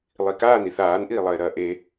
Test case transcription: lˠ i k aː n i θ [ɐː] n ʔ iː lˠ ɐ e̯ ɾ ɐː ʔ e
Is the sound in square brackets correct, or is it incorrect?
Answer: incorrect: aː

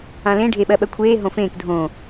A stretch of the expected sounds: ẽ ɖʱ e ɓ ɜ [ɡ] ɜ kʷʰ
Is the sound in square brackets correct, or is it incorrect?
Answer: incorrect: ɓ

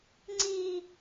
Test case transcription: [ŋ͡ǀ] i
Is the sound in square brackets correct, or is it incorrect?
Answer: correct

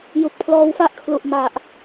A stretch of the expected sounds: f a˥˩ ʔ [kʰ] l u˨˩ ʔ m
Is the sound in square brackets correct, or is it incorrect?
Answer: correct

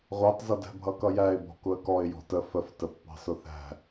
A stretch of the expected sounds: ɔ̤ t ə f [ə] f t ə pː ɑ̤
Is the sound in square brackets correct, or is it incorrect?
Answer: correct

